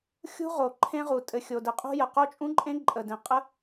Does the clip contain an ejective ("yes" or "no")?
yes